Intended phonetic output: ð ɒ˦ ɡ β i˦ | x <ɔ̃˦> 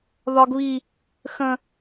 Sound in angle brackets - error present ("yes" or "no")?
yes